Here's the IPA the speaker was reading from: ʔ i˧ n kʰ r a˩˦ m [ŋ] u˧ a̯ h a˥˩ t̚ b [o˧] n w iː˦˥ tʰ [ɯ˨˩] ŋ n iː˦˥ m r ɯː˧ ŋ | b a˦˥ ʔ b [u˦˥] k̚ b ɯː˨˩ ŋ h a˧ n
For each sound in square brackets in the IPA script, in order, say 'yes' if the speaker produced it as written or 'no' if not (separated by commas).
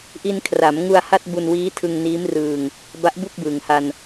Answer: yes, no, no, no